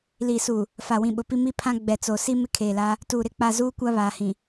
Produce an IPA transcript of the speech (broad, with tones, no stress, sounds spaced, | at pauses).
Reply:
l i˨ s u˨ | f a˨ w ĩ˨ ɓ ʊ˨ p i˦ m i˦ pʰ ã˦ ɡ͡b ɛ˨ t͡s o˨ s i˦ m ɪ˦ kʰ eː˨ l a˦ | t uː˨ ɾ ɪ˦ k͡p a˦˨ z uː˦ kʷ a˦ β aː˨ h ĩ˨